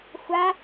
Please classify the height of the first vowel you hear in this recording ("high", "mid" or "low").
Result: low